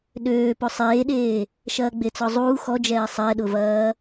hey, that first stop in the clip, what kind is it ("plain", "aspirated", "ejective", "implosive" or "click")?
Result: implosive